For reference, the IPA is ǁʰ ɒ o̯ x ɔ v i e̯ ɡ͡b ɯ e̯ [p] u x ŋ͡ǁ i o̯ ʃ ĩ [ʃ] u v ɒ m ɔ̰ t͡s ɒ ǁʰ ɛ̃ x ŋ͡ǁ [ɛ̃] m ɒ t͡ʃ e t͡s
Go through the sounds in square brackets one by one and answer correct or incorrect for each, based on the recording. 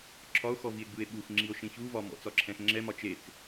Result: incorrect: ɓ, incorrect: ç, incorrect: ɛ

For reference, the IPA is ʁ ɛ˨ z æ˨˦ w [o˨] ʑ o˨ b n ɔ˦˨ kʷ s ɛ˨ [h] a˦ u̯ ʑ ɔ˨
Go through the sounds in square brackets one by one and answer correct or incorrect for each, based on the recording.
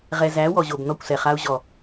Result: incorrect: ɔ˨, incorrect: χ

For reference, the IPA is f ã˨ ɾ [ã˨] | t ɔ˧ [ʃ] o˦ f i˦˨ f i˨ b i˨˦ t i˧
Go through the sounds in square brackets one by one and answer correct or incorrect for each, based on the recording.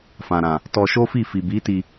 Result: correct, correct

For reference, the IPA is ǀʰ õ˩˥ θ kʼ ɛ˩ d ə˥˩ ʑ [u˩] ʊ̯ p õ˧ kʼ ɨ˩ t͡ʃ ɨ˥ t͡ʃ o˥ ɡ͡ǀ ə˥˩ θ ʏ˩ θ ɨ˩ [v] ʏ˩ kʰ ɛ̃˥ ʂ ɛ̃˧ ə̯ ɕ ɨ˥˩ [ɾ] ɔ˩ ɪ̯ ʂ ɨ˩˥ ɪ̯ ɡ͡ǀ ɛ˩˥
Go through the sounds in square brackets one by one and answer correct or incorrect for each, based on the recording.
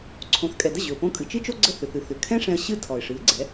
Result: incorrect: ʏ˩, incorrect: θ, incorrect: tʰ

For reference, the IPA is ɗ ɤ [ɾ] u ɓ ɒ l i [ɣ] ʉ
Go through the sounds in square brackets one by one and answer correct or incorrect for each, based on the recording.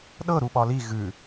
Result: correct, correct

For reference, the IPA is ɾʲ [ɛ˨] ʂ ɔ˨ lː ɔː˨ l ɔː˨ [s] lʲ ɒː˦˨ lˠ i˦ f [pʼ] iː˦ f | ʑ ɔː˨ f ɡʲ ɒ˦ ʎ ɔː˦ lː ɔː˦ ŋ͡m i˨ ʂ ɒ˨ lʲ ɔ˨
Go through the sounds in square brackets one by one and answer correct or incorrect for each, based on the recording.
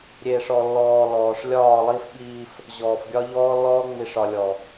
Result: incorrect: e˨, incorrect: ʂ, incorrect: ɓ

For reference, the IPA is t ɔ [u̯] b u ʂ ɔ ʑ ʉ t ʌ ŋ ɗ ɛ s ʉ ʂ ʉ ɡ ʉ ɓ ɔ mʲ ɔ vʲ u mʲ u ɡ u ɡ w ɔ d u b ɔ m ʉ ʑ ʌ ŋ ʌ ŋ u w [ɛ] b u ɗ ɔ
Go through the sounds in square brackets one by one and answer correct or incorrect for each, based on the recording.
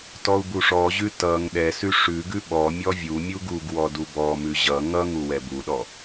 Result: correct, correct

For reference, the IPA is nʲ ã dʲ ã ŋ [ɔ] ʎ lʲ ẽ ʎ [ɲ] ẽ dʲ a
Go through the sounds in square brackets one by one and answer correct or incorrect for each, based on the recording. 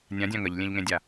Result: incorrect: ə, incorrect: ŋ

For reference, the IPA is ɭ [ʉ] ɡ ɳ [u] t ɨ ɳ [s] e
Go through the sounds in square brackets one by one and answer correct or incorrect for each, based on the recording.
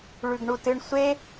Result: correct, correct, incorrect: sʷ

